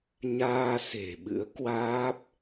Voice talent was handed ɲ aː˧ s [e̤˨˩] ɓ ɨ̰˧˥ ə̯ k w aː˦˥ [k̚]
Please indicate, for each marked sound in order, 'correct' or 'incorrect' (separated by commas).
correct, incorrect